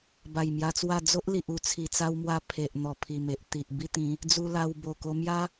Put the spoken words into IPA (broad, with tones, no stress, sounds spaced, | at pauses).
b a˨˩ j m j a˧ t͡s w a˥˧ d͡z o˦ ʔ l i˨ ʔ u˨˩ t͡sʰ i˨˩ t͡s a˦ w m w a˦ pʰ e˨ ʔ n̪ ɔ˨˩ pʰ i˨˩ m e˨ ʔ t̪ i˨ ʔ b i˦ t̪ ĩ˨˦ | d͡z u˧ l a˧ w b o˨˩ k o˧ m j a˦